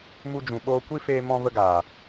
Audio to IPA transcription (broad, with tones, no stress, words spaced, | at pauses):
mu˧d͡ʒũ˨ɓoː˧kʷi˦ feː˦mɔ̃˦və˦ɡaː˨